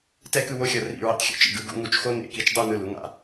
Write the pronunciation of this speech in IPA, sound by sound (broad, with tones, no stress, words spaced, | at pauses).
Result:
tɛ˥˧kɯ˥˧wo˥˧xʲʌ˧˩ rḭ˧˩ ɹḭ˧tˤxʲṵ˥t͡ʃḭ˧˩ɡɯ˩˧ ɡṵ˧ŋu˧˩t͡ʃxo˥ nḛ˧˩ki˧t͡ʃdˤu˥˧ nɯ˧˩lu˩˧ŋa̰˥˧